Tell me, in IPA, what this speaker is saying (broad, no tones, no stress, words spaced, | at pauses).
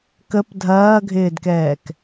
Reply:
kəp dʱɐːɡʱɪːdkɛːk